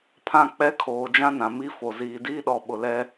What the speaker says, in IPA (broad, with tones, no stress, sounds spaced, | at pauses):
pʰ ã˦ k͡p ɛ˦ kʰ oː˨ d͡ʒ ã˦ n ã˨ m i˦ f o˨ z iː˨ d iː˦ ɗ ɔ˨ ɓ ʊ˨ l ɛ˦